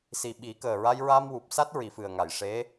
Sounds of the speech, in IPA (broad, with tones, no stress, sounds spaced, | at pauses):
s i˨˩ ɓ i˨˩˦ k əː˨˩ ɹ a˧ j ɹ a˧ m w u˨˩ p̚ s a˦˥ t̚ ɹ i˨˩˨ f ɨ˨˩ ə̯ ŋ a˨˩˨ j ʂ e˧˥